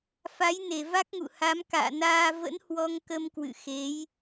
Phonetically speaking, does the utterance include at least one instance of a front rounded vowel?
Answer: no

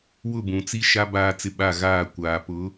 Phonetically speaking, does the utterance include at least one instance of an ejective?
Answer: no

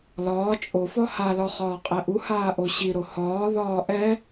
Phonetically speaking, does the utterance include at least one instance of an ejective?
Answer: yes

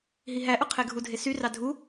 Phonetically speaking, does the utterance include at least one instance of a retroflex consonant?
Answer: no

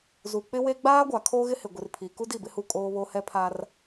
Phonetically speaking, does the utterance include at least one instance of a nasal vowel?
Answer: no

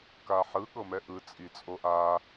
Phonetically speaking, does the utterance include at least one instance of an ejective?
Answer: yes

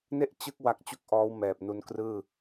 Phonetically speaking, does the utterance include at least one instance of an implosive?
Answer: no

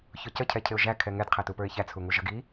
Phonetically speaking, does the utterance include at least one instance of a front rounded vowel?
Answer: no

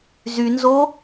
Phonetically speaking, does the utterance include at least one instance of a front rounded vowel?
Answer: yes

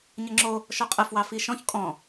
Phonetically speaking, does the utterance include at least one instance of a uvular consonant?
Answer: yes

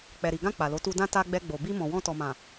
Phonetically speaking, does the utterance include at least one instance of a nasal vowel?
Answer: yes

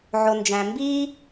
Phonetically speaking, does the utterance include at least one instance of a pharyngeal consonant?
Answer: yes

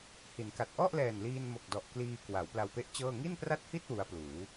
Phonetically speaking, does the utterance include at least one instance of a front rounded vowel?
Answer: no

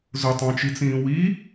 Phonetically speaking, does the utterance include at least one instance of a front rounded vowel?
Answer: no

